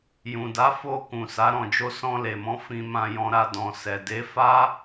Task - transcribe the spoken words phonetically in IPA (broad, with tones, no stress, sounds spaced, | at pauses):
j ũ˨ d a˨˦ f o˧ k ũ˨ s a˨˦ ɾ ɔ̃˧ d͡ʒ o˦ s ɔ̃˧ l e˨ m ɔ̃˨˦ f ĩ˧ m ã˧ j ɔ̃˧ ɾ a˧ d ɔ̃˨ s ɛ˨ d e˨˦ f a˦